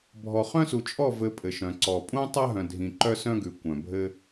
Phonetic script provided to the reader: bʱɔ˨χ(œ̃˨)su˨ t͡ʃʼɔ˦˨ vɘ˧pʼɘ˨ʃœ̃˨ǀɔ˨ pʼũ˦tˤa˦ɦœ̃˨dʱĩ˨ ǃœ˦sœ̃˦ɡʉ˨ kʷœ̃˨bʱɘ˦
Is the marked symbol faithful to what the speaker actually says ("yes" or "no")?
no